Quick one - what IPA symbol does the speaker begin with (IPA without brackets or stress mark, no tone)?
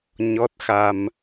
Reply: ɲ